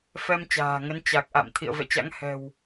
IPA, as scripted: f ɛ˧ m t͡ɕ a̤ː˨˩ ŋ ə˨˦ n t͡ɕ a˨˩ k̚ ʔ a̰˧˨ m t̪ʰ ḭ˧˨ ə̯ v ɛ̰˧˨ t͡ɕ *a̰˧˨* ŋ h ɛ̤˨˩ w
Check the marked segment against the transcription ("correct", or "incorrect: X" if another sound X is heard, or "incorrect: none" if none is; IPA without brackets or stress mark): incorrect: a̰˧˥